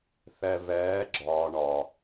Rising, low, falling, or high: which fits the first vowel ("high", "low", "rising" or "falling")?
low